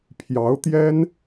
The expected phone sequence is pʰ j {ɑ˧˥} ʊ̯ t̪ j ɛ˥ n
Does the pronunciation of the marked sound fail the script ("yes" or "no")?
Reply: no